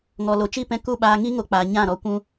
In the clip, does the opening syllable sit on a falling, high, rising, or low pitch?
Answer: low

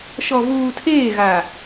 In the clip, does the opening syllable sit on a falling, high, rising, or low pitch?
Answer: low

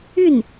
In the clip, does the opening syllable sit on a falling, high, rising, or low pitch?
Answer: falling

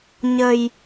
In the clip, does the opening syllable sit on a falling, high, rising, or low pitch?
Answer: low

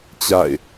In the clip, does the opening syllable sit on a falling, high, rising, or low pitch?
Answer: falling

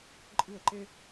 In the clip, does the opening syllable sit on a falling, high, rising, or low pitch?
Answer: falling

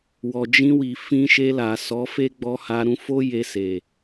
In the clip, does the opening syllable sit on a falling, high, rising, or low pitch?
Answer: low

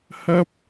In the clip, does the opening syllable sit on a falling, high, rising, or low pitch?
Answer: high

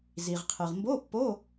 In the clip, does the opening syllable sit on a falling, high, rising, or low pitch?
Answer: low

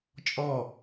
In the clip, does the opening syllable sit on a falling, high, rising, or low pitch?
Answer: falling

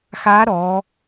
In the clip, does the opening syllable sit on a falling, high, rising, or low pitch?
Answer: rising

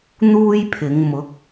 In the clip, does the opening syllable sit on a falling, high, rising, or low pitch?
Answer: high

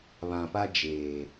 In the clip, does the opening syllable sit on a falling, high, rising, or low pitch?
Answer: low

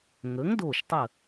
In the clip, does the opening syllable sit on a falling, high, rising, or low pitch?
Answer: rising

